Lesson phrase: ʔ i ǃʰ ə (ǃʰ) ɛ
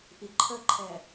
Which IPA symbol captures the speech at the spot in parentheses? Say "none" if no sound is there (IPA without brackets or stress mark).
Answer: ǃʰ